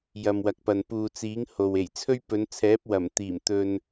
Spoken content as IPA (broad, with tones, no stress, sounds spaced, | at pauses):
j ɐ˨ m w ɐ˨ k̚ p ɐ˨ n p uː˨ t͡s iː˨˥ ŋ h o˨ w e˨˩ j t͡sʰ ɵ˥ ɥ p ɵ˨˧ n t͡sʰ ɛː˨˥ p̚ w ɐ˨˩ m t̪ iː˨˩ m t̪ ɵ˧ n